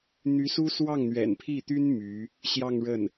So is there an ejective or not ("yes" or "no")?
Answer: no